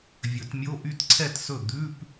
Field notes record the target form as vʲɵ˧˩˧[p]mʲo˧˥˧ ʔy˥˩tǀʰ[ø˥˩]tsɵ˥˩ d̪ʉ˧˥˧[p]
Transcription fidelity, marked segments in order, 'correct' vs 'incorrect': incorrect: t, incorrect: ɛ˥˩, correct

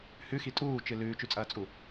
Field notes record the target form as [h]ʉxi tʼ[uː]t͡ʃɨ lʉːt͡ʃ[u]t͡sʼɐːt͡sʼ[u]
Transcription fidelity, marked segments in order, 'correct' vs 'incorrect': correct, correct, incorrect: ʉ, correct

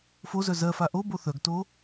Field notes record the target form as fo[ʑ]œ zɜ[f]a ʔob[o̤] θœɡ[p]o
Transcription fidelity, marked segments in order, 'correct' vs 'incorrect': incorrect: z, correct, incorrect: o, incorrect: t

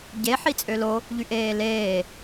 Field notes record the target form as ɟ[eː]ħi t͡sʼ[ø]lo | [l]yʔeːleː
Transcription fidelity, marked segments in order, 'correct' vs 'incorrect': incorrect: e, correct, incorrect: ʎ

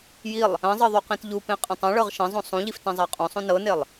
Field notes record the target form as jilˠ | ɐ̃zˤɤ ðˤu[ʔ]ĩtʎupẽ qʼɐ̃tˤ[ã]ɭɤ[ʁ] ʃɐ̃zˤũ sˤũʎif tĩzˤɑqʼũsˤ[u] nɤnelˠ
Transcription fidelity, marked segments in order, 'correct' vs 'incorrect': incorrect: q, incorrect: ɐ̃, correct, incorrect: ũ

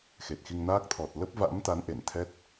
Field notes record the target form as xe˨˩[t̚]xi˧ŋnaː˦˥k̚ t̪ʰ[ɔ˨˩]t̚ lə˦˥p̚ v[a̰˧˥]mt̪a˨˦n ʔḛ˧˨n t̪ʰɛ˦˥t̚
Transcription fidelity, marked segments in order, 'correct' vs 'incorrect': correct, correct, correct

